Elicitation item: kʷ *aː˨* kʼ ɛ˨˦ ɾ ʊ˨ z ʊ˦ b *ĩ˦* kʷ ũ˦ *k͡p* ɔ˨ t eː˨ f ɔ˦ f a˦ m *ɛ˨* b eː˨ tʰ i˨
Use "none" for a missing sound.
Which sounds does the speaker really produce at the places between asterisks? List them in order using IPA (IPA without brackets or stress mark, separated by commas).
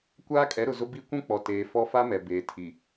aː˦, i˦, k͡p, ɛ˨